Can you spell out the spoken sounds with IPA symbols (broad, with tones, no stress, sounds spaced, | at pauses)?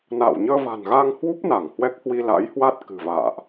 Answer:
n a̰ː˧˨ w ɲ əː˧ v a̤˨˩ n ɣ a˧ ŋ h w u˦˥ p̚ n a˧˩ ŋ h w ɛ˦˥ k̚ h w i˧ l a̰˧˥ j h w a˦˥ t̚ k ɨ̤˨˩ v a̰ː˧˨ ʔ